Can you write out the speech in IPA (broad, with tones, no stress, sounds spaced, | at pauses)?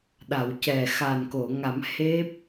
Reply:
ɗ a˨˩˨ w c ɛ˨˩ x aː˨˩ n k o˨˩˨ ŋ a˨˩˦ m h e˦˥ p̚